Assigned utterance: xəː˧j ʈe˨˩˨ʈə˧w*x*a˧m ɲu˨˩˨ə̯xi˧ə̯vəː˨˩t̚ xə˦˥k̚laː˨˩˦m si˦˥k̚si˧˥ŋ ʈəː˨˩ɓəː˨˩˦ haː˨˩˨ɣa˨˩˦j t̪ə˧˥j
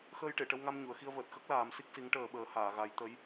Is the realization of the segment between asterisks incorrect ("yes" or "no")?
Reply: yes